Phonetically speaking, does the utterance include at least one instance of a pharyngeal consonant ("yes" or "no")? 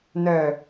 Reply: no